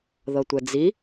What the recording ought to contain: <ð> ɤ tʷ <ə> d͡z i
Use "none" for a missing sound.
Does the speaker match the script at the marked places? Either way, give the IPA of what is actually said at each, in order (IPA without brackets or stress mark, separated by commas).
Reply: ð, ɛ